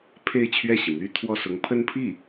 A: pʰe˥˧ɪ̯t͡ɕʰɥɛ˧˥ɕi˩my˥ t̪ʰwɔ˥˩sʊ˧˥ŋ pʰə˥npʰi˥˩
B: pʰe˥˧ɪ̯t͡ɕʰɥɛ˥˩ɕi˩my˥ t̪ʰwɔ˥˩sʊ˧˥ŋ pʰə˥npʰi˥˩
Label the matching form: B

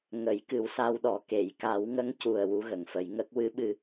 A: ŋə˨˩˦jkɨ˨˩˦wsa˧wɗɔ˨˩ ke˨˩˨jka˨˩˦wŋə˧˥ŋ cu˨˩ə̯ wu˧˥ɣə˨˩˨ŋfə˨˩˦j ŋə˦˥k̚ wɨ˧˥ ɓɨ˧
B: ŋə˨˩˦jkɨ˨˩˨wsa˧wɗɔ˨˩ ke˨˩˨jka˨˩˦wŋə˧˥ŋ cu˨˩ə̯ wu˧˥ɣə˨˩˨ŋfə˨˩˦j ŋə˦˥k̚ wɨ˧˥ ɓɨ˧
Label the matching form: A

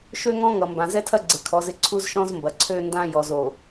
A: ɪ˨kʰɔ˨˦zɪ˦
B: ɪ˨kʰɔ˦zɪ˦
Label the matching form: A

